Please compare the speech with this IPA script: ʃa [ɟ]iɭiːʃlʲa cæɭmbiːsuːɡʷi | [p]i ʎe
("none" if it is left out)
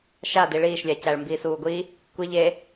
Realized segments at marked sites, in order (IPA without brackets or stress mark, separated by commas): d, kʷ